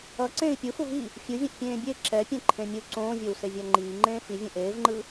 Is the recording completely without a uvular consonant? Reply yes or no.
yes